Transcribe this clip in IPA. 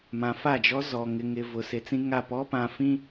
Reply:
mã˨fa˦˨d͡ʒɔ˦zɔ˨ ŋɪ˨ŋɪ˨ vʊ˨sɪ˨˦t͡sĩ˦ŋa˦˨ pɔ˦pã˨ fĩ˦

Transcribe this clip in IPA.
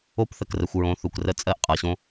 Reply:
o˦pθə˨krə˨xʷ ɹõ˨˦θu˨krə˦ t͡sʼɜ˦ʔqʼɤ˨ɕõ˦

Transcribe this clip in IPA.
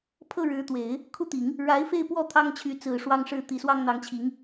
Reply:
pʰɤ˥˩ ɻɻ̩˧˥t̪we˨˩˦ɪ̯ | kʰu˥˩t̪i˨˩˦ŋ | ɻa˧˥ɪ̯fe˥˧ɪ̯pwɔ˥˩ t̪ʰɑ˥ŋt͡ɕʰy˧˥t͡sɹ̩˨˩ ʂwɑ˥ŋʂɻ̩˥˩t̪i˧˥swɑ˥ŋ n̪ɑ˧˥ŋt͡ɕʰi˧˥ŋ

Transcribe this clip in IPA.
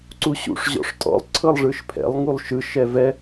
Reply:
ǀuɕṵʂ ʑɔ̰ʂtʼɔ̰lˠ ǀʰɤlˠʐɯʃpʰɛ̰lˠ ŋulˠʃɯ ʃɛvɛ

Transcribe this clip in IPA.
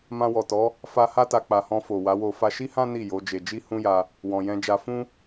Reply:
mã˧wɔ˨tɔ˨˦ | fa˧ ha˦ta˧ k͡pa˨hɔ̃˧ fo˨wa˨˦wo˧ fa˧ʃi˦hã˦ ni˦˨ jo˨˦d͡ʒe˧ d͡ʒi˦hũ˦ja˧ | wɔ̃˨jɛ̃˧d͡ʒa˧ fũ˦

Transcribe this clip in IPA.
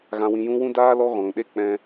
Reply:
ɣã˧wĩ˧jũ˦wũ˦ daː˦ lɔ˦ɣɔ̃˨ŋɗe˦ k͡pɛ̃˧

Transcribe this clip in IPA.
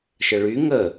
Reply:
ʃəɭy ŋə

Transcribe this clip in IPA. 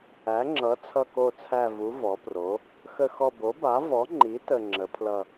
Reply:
æ˩˥ŋ͡ǁʌ˩˥ t͡sʰʌ˦˨ko˦˨t͡sʰæ˦˨ vu˩˥ vɔ˩˥pro˩˥ | xə˦˨xɔ˦˨ bo˩˥ba˩˥vɔ˩˥ŋ͡ǃi˩˥ tə˦˨ŋ͡ǁə˩˥pʰlʌ˦˨

